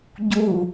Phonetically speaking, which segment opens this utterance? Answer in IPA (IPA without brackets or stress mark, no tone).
ɟ